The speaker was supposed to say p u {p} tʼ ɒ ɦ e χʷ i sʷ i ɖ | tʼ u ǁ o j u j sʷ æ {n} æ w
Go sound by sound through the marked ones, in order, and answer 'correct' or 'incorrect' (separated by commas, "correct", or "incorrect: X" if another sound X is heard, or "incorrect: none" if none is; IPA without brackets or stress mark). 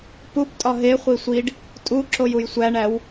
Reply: correct, incorrect: ɳ